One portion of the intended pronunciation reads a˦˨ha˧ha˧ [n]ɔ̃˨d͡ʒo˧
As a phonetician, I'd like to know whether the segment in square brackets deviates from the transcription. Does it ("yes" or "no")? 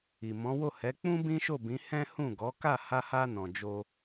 no